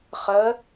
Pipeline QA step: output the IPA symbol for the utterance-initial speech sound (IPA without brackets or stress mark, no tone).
χ